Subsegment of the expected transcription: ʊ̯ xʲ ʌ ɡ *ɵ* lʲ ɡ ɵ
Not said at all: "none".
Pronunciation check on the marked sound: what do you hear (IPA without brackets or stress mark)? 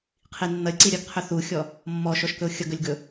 ɵ